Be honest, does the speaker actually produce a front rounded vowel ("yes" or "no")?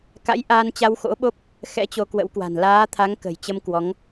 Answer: no